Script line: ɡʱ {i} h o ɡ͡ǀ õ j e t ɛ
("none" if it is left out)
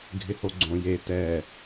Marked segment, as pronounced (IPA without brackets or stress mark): ɪ